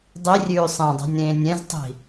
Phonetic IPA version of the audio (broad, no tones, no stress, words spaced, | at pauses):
dˤirʲʉː sˤẽdˤɛ̤nʲɾẽːnʲ ɛ̃ztˤi̤